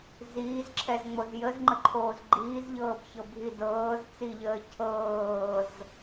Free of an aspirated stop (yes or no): no